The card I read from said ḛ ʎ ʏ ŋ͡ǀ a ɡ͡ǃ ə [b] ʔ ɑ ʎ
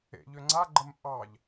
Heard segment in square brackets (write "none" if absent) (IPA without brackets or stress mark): m